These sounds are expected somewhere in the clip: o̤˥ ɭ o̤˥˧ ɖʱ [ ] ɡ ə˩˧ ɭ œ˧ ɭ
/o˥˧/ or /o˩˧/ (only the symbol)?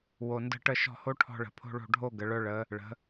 o˥˧